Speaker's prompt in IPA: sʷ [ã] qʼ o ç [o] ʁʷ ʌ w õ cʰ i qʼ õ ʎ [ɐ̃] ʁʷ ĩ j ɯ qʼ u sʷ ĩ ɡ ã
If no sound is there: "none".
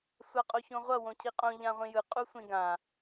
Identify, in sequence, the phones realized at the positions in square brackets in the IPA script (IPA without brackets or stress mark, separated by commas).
a, õ, ã